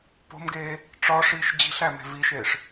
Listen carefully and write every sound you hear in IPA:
p o̤ m ɡ eː | ʈ͡ʂ ɒ ʂ iː ʃ d͡ʑ i̤ ɬ æ m e̤ v i ʃ eː ʂ

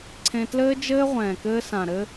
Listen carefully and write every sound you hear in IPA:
ǀʰ ẽ˧ t l ɘː˦ d͡ʒ ɘː˦ ʁʷ ɛ̃ː˨ k ɘː˧ s ã˨ ɾ ɘ˧

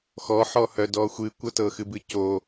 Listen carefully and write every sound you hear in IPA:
x ɔ ħ ɔ h œ d ɔ xʷ ɨ kʷ ɤ t ɤ x ɨ b ɨ c o

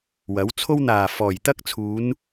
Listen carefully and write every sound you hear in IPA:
w ɐ˨˥ w t͡sʰ o˥ w n̪ aː˨˩ f ɔː˨˩ j t̪ ɐ˥ k̚ t͡sʰ uː˨˧ n

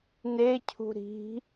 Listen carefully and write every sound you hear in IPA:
n e cʰ ṳ ɾ i̤

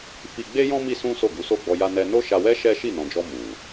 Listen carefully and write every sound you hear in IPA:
f i˧ ɡ͡b e˦ j ɔ̃˦ m i˦ s ũ˦ s o˦˨ ɡ u˨˦ s o˦˨ ɡ͡b ɔ˧ j a˦ n ɛ˦ n o˦ ʃ a˧ w ɛ˦ ʃ ɛ˦ ʃ i˦˨ n ɔ̃˨ d͡ʒ ɔ˧ m u˨

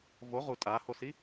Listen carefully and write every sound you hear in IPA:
v o ʁ u tʼ a h o s i

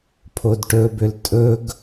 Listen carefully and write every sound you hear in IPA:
pʰ o d ʈ ɵ b ʏ l tʼ ɵ ɡ

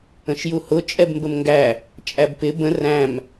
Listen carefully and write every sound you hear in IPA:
ə̃ ʃ j u h ʊ t͡ʃʼ ɛ b m b ə m ŋ ɡ æ | t͡ʃʼ æ b p ɪ b ə̃ r æ̃ m

